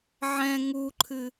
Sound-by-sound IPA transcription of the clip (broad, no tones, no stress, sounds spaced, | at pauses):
ʕ ɛ̃ ŋ u ǃʰ ɨ